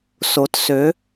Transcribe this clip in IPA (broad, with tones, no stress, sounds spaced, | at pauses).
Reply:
s o˩˧ t s ø˩˧